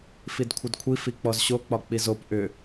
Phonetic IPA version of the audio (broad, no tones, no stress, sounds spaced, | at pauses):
f i d kʷʰ ʌ d kʷʰ i f i k͡p ɔ z ɕ o k͡p ɒ k͡p i z o p ʔ ʏ